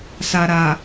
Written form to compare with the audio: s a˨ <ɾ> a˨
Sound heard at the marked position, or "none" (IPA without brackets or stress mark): ɾ